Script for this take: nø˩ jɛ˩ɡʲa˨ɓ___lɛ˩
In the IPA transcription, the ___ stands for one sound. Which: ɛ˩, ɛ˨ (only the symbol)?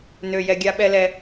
ɛ˨